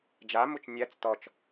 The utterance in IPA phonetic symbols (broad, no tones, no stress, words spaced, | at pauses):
d͡ʒamut͡ʃ nʲæt͡s tɔt͡ʃ